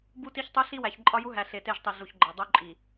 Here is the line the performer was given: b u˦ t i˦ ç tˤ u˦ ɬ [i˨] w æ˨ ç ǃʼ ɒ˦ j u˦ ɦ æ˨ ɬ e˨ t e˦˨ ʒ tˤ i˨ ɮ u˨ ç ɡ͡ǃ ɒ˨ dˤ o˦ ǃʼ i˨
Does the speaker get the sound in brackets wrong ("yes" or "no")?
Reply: yes